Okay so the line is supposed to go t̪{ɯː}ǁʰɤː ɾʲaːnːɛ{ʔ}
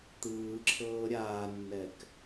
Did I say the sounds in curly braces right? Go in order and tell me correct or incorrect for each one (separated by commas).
correct, incorrect